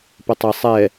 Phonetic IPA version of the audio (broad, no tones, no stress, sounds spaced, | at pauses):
p ə tˤ ə sˤ ɛ